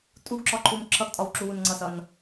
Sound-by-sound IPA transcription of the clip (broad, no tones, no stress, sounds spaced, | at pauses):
tʼ u ɡ ǁ ɒ ǃʰ u m ǁʰ ʌ ɡ tʼ ɒ w ǁ u w u n ŋ͡ǀ ʌ s ʌ n